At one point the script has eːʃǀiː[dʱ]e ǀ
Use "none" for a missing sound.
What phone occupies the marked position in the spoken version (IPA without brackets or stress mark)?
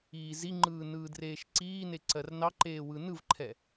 n